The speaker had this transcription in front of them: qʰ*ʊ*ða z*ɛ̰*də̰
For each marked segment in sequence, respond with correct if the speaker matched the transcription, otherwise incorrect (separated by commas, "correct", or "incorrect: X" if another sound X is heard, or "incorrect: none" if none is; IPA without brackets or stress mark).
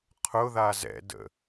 correct, correct